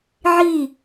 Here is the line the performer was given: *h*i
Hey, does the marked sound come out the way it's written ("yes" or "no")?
no